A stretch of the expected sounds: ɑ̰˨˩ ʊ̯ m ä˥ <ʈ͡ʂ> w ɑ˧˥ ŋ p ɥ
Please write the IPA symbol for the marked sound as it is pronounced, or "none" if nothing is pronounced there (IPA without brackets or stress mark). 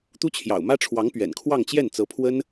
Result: ʈ͡ʂʰ